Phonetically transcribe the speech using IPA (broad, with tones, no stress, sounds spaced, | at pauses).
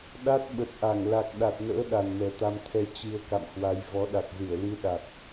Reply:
ɗ a˦˥ t̚ ɓ ə˨˩ t̚ ʔ a˧˩ ŋ l a˨˩ k̚ ɗ a˨˩ t̚ n ə̰ː˧˥ ɗ a˨˩ n m ɛ˨˩ t̪ a˧ m t̪ʰ ɛ˧ t͡ɕ ɨ˧ ə̯ k a̰˧˨ m h w a˨˦ j v ɔ˨˦ ɗ a˨˩ k̚ z ɨ˧˩ ə̯ l ɨ˧ ɗ a˨˩ k̚